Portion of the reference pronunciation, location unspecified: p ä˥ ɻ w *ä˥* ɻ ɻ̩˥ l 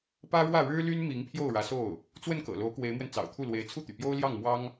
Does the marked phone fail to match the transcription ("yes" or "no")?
yes